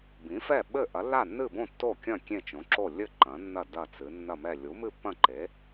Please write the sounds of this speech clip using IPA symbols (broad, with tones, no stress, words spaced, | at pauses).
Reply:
bĩ˩˥fɛ˥˩ ɓɘ˥˩ ʔɐ˩˥lːa˥˩nːɨ˥˩bõ˥˩ tːo˥˩kʲɐ̃˥˩ kʲẽ˥˩t͡ʃõ˩˥ǁo˥˩ lʲɘ˥˩ ǃɐ̃˩˥nːɐ˥˩ dɐ˥˩t͡sɨ˩˥ nːɐ˥˩mɛ˥˩ lʲu˩˥mɨ˥˩pːɐ̃˥˩ǃe˩˥